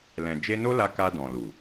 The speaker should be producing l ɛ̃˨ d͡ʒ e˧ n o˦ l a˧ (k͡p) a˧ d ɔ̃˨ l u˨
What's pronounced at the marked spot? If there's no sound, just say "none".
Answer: k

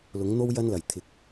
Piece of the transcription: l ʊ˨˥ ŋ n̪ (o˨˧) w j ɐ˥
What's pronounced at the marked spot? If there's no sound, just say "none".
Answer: o˥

